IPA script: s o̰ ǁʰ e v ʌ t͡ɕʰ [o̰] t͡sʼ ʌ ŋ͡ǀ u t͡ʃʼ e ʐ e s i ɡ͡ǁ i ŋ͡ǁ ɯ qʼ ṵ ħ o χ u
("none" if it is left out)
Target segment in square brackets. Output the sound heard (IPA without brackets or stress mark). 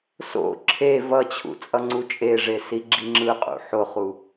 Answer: ṵ